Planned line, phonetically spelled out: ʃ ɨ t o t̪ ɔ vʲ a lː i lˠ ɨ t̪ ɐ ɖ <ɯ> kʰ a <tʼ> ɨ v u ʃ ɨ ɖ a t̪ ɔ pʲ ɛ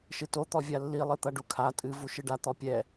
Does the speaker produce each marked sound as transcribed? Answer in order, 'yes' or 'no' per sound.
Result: no, yes

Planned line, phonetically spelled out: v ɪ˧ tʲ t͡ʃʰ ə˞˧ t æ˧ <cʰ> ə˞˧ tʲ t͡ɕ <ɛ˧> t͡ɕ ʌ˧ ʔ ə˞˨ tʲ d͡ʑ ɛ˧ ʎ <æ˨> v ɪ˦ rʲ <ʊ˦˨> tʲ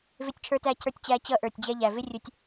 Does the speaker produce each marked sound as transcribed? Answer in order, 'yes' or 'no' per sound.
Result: yes, no, yes, no

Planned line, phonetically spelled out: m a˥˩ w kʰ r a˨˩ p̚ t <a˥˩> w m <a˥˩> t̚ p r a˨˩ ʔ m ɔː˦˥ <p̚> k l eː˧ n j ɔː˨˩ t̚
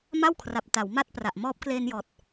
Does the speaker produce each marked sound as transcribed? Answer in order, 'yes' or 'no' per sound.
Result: no, yes, yes

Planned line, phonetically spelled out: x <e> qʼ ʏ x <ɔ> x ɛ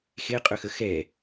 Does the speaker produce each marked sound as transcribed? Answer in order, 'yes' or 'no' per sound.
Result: yes, no

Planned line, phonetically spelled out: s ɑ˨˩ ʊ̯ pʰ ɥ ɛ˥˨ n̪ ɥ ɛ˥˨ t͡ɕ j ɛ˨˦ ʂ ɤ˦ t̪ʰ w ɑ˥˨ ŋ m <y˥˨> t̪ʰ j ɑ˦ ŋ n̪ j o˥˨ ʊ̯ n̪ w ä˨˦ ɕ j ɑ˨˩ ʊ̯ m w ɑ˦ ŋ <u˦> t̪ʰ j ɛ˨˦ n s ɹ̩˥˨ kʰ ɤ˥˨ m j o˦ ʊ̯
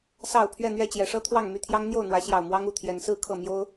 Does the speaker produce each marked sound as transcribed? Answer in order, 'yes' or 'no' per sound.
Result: yes, no

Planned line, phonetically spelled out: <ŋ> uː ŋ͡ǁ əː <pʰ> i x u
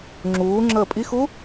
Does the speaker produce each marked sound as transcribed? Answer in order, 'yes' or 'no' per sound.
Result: no, no

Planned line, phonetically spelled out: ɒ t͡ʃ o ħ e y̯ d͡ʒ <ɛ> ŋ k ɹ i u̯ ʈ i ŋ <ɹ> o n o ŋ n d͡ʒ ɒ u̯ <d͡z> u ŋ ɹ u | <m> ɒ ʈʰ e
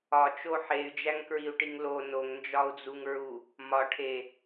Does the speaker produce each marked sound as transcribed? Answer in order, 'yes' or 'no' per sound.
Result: no, no, yes, yes

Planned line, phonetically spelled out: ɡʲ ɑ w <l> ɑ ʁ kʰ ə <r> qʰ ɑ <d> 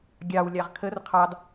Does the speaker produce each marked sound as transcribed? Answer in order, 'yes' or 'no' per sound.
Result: no, yes, yes

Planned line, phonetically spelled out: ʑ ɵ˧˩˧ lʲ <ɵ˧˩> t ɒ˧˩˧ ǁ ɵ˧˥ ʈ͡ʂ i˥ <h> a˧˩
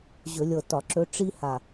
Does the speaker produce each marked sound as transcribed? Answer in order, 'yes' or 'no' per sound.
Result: no, yes

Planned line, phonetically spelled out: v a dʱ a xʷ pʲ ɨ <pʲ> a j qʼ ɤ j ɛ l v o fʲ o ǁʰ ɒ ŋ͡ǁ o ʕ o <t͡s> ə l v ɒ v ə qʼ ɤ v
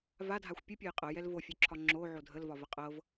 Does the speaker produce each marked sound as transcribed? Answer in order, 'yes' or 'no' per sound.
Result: yes, no

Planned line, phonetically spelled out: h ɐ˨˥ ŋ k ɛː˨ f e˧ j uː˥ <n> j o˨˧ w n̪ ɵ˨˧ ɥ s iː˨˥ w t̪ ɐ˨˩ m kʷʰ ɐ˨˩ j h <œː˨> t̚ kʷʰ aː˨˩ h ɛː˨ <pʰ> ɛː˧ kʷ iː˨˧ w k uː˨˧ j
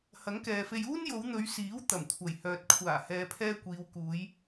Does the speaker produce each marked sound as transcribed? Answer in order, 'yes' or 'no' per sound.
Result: yes, yes, yes

